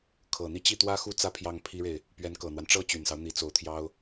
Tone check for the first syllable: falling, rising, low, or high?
low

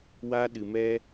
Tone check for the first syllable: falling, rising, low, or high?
high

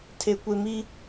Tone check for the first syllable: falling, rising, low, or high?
high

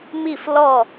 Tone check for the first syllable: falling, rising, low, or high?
falling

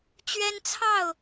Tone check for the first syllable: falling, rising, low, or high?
high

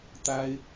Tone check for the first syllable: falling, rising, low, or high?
high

